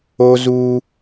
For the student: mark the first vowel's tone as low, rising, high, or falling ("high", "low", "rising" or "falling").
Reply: high